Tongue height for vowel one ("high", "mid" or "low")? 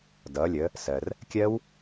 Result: mid